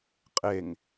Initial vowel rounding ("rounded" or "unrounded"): unrounded